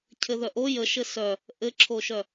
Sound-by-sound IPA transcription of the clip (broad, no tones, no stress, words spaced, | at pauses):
cʰɘðœʔo jəʃɘ sœ | ʔɘǁʰoʃœ